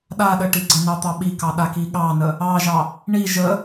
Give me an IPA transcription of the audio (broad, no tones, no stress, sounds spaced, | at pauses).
ɗ a ɗ ə ʈ i ɡ͡ǀ ə n ɑ t̪ ɑ ɓ i k ɑ ɗ a k i ɠ ɑ n ə | ɑ ʒ ɑ | ɳ i ʒ ə